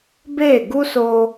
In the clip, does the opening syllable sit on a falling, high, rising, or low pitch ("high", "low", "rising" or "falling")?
falling